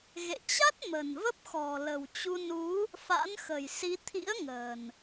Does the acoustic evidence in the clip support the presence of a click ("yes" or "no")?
no